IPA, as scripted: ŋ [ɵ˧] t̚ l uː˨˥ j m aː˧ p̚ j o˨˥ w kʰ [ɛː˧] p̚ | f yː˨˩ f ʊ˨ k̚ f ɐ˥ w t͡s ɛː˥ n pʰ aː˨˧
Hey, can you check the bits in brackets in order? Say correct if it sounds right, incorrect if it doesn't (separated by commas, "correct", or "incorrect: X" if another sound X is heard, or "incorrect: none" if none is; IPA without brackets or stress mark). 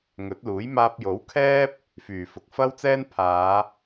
incorrect: ɵ˨˥, incorrect: ɛː˥